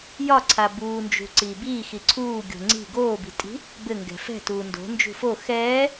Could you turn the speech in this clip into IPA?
j ɒ ǀʰ a b uː n d͡ʒ ṳ ǀ iː b iː x i ǀʰ uː ɡʲ o̤ ŋ͡ǀ i̤ ɡ oː b i̤ tʼ i̤ | b ɘ ŋ ɡ ɛ̤ f ɛ̤ t uː n d o̤ n d͡ʒ ṳ f o x ɛː

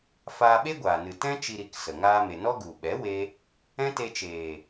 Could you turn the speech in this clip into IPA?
f aː˧ ɓ e˦ ɡʷ aː˨ n ɨ˨ t ɛ̃˦ t͡ʃ i˧ ɾ i˨˦ k s ə˨ ŋ aː˧ m e˨ n ɔ˦ ɡ u˨ ɓ ɛ˨˦ w e˦ | ɛ̃˦ t e˧ t͡ʃ eː˨

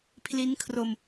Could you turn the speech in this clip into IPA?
pʰ l i˦˥ n kʰ r o˧ m

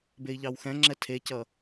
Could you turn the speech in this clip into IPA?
b e i̯ ʎ ɑ w x ɛ̃ ŋ͡ǁ ɛ tʰ e c ʌ

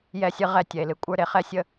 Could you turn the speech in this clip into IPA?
j ɛ˦˨ sʲ ɨ˦ ʁ ɛ˦˨ tʲ ɛ˨ e̯ l ɨ˨ kʷʼ ə˞˦ ɾ e˨ χ ɛ˦ sʲ ə˦

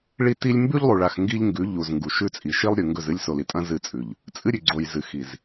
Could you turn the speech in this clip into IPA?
ɭ i˦ t i˦ lʲ m b ʉ˦ ʎ lˠ u˨ ɭ a˨ x ŋ ɡ i˦ ʎ ŋ ɡ ʉ˨˦ ʎ u˨ z ŋ ɡ u˨ ʃ ʉ˦ t͡sʼ i˨ ʃ i˦ lˠ ɾʲ ʉ˨ ŋ ɡ ɵ˦˨ z ɨ˦ lʲ s o˨ l i˨ tʼ ɐ̃˦ z ɨ˦˨ t͡sʼ ʉ˨ ʎ | t͡sʼ ɨ˦ ɾʲ ʉ˨ ɡ͡ǀ o˨ j z ɨ˨ x i˨ z

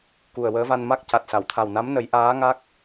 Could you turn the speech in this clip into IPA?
k u˨˩ ə̯ w əː˧˥ v a˧ n m a˦˥ k̚ c a˨˩ t̚ s a˨˩˨ w t̪ʰ a˨˩ w n a˧˥ m n ə˨˩˦ j ʔ aː˧˥ ŋ a˦˥ k̚

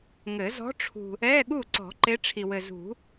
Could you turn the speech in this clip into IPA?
ŋ ɘ˨˩˦ z ɔ̤˨˦ ʈ͡ʂʰ ṳ˨ | ɛ˧˥˧ ɠ u˥˩ ǀ ɔ̤˨˩˦ ǃ e˨˦ ʈ͡ʂʰ i˨ w ɘ˨ z ṳ˨˩˦

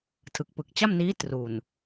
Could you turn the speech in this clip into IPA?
tʰ ɯ˨˩ k̚ p ɯ˨˩ k̚ t͡ɕ a˥˩ m n iː˦˥ t r u˨˩ n

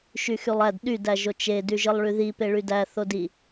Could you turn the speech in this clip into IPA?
ʃ y x y lˠ æ d ɗ y d æ ʒ o t͡ʃ e d y ʒ ɯ lˠ ɭ y ð i p e ɭ y d æ θ o d i

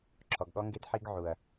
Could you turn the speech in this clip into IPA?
ǁʰ ɔ˨ ɡ ɠ ɔ˦ ŋ ɡ e˦ d ħ i˦ ɡ ʕ u˨ ɐ̯

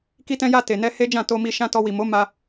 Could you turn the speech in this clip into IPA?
k i˧ t ɛ̃˧ j a˧ t e˨ n ɛ˧ h e˦ d͡ʒ ã˦˨ t o˧ m i˧ ʃ ã˦ t ɔ˧ w i˨ m o˨˦ m a˧

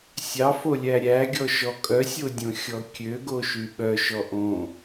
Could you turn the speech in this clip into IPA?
sʲ ɑ f o lʲ æ ɾʲ æ ɡʲ ɔ ʃ ɔ kʼ œ sʲ o dʲ õ xʲ ɔ kʲ ø ɡ o ʃ y ɓ œ ʃ ɔ ʔ õ

